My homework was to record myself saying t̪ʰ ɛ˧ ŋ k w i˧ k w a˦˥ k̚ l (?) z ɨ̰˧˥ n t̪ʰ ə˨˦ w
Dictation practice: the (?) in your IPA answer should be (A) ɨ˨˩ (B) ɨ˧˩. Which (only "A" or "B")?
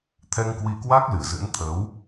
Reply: A